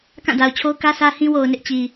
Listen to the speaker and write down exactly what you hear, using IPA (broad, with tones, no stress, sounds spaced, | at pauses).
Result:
k ã˦˨ d a˨ ʊ̯ t͡ɕʰ o˦ ʊ̯ k ä˦ s ä˦ h ĩ˦ w o˨ ʊ̯ n ɪ˦ ʔ t͡ɕ i˨